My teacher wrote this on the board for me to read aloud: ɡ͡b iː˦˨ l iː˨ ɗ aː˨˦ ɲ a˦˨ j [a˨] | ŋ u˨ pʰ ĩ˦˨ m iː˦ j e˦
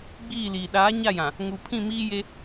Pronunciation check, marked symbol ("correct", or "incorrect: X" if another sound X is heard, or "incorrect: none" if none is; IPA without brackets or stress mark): incorrect: ã˨